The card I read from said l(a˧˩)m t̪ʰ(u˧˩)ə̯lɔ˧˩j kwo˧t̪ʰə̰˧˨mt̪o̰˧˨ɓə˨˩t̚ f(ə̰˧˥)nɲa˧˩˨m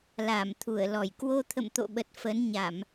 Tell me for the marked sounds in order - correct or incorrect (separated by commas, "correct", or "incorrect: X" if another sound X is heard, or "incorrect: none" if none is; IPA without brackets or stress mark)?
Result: correct, correct, incorrect: ə˨˦